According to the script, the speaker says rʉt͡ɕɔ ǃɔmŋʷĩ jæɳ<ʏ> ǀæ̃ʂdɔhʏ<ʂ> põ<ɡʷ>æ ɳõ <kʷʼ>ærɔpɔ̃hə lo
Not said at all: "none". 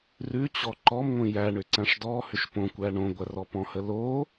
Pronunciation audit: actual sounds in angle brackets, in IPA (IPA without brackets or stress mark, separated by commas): ʏ, ʃ, kʷ, ɡʷ